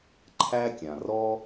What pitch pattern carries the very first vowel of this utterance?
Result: high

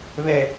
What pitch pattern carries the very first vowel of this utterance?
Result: low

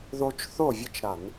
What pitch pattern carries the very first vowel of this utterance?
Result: high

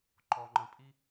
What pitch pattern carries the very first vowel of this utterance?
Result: low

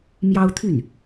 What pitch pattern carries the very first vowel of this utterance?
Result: high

